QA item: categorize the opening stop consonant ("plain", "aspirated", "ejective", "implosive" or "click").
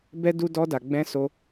plain